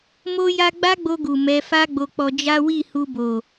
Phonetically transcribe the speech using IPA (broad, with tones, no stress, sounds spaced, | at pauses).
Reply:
m o˦ j a˦ ɡ͡b a˦ ɡ͡b o˧ ɡ u˨ m ɛ˨˦ f a˦ ɡ͡b o˧ k͡p ɔ˧ d͡ʒ a˦ w i˦˨ h u˧ b o˨